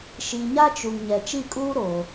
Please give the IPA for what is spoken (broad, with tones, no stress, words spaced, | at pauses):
ʃi˨ɲa˦t͡ʃu˨ŋ ɲɛ˨t͡ʃi˦˨kʼuː˦ɾo˨